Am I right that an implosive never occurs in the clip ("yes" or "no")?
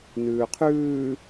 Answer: yes